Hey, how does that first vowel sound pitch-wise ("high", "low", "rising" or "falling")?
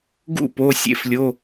falling